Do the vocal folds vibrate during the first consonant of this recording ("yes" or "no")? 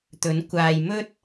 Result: no